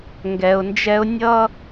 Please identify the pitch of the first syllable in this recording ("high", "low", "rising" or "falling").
low